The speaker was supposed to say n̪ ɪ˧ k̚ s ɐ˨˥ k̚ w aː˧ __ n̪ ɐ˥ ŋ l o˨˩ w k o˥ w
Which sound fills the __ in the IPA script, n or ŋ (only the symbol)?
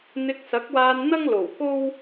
n